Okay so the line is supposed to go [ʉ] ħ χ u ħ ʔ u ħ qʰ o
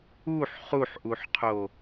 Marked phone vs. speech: incorrect: u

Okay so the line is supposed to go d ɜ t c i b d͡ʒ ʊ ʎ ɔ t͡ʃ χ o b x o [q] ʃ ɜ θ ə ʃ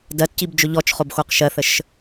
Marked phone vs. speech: correct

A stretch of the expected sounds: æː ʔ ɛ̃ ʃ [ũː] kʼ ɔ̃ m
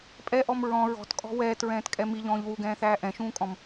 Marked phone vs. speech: correct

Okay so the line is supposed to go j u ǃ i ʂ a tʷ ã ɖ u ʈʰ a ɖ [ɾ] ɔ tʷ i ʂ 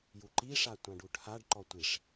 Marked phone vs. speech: incorrect: ǃ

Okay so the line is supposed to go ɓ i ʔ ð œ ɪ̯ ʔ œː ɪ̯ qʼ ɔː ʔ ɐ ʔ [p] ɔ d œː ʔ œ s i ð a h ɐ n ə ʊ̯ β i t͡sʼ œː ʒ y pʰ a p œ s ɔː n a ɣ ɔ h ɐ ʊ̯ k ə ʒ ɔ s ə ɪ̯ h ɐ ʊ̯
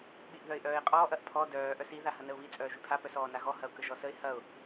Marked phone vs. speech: incorrect: pʰ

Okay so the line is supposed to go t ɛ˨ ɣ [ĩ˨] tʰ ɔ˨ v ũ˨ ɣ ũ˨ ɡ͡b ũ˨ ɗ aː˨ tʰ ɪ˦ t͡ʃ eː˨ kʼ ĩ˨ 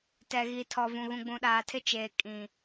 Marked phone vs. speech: incorrect: i˨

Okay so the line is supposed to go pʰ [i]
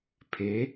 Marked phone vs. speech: incorrect: e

